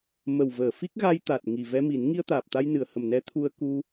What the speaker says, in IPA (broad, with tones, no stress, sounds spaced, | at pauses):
m ə˨˩ w v əː˨˩˨ f i˦˥ k̚ ɣ a˧ j t̪ a˨˩ t̚ ŋ i˨˩ v ɛ˧ m i˨˩˦ n ŋ i˧ ə̯ t̪ aː˨˩ p̚ t̪ a˧ j n ɨ˨˩˨ ə̯ h ə˨˩ m n ɛ˧˥ t̪ʰ u˧ ə̯ k u˧